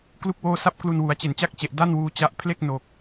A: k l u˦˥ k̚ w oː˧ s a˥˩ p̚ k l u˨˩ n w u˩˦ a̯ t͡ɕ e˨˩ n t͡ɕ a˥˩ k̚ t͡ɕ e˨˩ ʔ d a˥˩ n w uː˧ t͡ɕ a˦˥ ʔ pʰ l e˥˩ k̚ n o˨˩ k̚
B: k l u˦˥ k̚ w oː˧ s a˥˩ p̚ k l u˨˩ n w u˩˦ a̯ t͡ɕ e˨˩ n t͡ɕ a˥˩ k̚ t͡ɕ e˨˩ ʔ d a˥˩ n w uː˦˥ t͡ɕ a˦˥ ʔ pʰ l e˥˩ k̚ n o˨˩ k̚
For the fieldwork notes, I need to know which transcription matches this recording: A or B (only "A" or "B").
A